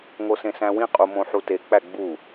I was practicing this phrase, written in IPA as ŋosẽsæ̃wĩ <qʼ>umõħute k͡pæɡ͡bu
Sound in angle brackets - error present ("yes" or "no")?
no